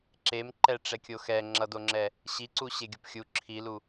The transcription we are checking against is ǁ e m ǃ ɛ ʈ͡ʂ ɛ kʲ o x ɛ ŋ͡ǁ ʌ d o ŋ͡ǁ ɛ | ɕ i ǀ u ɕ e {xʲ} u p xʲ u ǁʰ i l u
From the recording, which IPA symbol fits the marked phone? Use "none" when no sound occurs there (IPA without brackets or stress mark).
ɡʲ